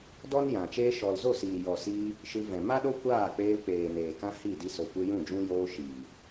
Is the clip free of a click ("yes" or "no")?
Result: yes